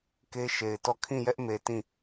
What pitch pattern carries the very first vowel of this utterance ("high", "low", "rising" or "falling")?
high